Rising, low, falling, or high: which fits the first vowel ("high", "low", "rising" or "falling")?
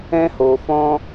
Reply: high